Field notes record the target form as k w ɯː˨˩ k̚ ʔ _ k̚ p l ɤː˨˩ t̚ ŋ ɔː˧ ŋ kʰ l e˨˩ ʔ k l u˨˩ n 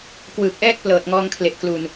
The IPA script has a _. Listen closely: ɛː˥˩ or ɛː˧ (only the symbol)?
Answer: ɛː˥˩